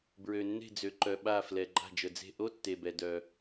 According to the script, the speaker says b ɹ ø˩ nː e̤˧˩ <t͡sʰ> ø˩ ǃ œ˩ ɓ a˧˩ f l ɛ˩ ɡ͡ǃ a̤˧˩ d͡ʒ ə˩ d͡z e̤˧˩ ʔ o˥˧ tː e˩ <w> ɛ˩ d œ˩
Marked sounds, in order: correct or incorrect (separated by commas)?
incorrect, incorrect